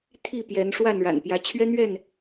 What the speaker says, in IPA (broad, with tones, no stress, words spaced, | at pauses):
t̪ʰi˥˨pjɛ˨˦n ʂwa˥˨nɻa̰˨˩n pjä˨˦ t͡ɕʰɥɛ˦n̪ɥɛ˥˨n